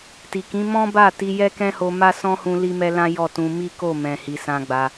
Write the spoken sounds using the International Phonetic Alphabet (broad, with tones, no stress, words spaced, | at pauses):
ti˨kĩ˨˦ mɔ̃˦ba˦˨ ti˧jɛ˦ kɛ̃˦ho˧ ma˦sɔ̃˦ hũ˦li˦mɛ˦lã˦ jɔ˦˨tũ˧ mi˦ko˦˨mɛ̃˨ hi˨sã˧ɡ͡ba˧